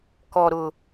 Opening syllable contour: low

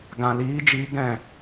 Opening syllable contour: low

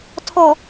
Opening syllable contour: low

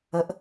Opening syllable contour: rising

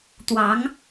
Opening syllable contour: rising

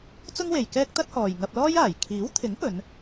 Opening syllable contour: high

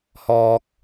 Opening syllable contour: high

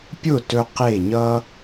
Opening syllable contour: falling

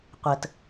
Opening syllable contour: low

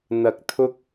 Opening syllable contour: low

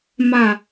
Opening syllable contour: low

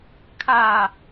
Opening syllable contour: falling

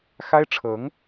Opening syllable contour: high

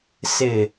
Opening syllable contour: low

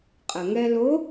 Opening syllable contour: low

